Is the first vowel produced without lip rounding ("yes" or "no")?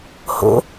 no